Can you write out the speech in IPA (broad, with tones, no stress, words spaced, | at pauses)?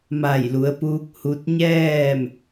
ma˧˩jlu˩˧ə̯puː˧k̚ hu˧t̚ ɲɛː˥˨m